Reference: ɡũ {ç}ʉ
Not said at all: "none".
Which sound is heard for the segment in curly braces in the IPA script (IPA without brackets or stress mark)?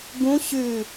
ɕ